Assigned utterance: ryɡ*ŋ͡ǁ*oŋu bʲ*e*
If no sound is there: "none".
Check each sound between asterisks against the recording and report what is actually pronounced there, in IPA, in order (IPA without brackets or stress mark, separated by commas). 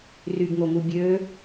ŋ, ø